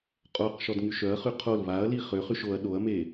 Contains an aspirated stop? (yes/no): yes